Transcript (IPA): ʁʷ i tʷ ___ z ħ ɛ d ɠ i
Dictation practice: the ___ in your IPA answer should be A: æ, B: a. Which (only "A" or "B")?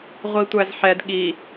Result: A